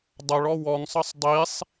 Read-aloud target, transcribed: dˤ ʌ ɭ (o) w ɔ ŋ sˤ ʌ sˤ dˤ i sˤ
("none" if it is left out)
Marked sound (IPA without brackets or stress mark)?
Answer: ɔ